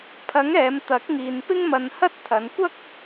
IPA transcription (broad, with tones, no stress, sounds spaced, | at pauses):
pʰ ɐ˨˥ ŋ ɛː˨˧ m t̪ ɐ˨˥ k̚ ŋ iː˨ n p ɪ˥ ŋ m ɐ˧ n h ɐ˥ t̚ t̪ʰ ɐ˨˧ n kʷ ɐ˥ k̚